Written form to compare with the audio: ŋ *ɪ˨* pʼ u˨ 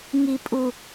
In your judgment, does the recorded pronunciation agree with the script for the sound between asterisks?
no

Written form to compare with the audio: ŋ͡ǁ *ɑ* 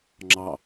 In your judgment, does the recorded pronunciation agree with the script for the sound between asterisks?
yes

